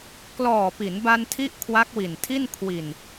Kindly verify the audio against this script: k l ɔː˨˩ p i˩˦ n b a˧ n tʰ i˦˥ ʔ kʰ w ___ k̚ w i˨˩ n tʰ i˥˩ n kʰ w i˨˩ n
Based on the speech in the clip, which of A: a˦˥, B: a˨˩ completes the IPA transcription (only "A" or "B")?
A